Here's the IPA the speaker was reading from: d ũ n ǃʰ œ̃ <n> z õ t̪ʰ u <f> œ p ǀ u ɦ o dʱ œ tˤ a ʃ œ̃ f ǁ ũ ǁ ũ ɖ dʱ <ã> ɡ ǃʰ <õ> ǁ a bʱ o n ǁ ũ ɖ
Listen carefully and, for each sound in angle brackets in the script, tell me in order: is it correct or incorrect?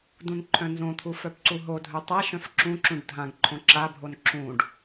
correct, correct, correct, correct

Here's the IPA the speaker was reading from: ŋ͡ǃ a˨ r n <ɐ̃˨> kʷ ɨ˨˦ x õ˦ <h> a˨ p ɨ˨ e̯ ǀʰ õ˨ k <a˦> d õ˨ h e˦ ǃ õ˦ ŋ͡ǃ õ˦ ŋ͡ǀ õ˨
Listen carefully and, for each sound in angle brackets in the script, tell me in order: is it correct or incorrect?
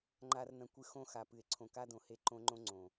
correct, incorrect: x, correct

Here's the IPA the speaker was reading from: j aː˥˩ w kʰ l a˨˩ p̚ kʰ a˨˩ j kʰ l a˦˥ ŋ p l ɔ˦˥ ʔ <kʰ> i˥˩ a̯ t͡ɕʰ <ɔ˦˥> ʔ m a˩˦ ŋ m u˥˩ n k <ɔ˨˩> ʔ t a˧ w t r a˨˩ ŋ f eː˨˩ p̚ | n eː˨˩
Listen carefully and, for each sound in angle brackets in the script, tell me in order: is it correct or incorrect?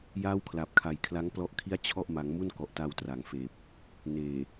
correct, incorrect: ɔ˥˩, correct

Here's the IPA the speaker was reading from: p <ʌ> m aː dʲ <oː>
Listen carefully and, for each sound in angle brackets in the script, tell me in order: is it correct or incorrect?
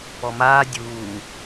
incorrect: ɔ, incorrect: uː

